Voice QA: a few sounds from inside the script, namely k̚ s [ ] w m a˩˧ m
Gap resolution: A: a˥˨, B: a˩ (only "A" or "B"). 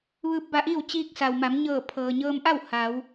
B